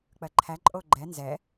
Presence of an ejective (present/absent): present